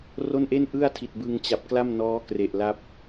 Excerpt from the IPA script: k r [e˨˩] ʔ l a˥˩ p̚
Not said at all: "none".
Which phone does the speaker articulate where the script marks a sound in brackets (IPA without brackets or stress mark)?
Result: e˨˩